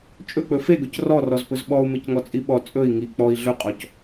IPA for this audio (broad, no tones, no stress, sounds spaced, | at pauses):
t͡ʃʼ ɵ k͡p ɵ f e ɡ ɵ c r ɔ r ɔ z p ɵ z ɓ ɔ u̯ m e c ŋ ɔ t͡sʼ i ɓ ɔ t͡sʼ ɵ i̯ ŋ i k͡p ɔ i̯ ɮ ɵ qʼ ɔ c